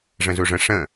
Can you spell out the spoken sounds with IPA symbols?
ʐə̃zuʐə̃ ʂə̃

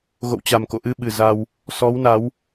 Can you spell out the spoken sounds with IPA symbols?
ɣo̰˧˨wt͡ɕa˨˩mko̰˧˨ʔɨ˧ ɓɨ˨˩ za˧w | sɔ˨˦wna˨˦w

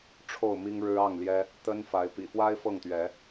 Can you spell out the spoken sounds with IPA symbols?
ʈ͡ʂʰo˥˨ʊ̯mi˦ŋɻɻ̩˦ ɑ˥˨ŋljɛ˦ | t̪ə˦nfa˨˦ɪ̯ pḭ˨˩fwa˦ɪ̯ fɤ˥˨ŋt̪ɥɛ˨˦

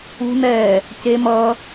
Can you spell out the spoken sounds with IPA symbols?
ṳ nɛː | ce mʌː

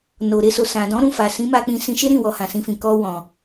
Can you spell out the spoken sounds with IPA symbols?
no˨ ɾe˧so˨sã˨dɔ̃˨˦ ɾũ˦˨fa˨sĩ˨˦ ma˧k͡pĩ˧ sĩ˧ʃe˦ɾĩ˦˨ wɔ˧hã˨sĩ˧fĩ˨ kɔ˧wɔ̃˨

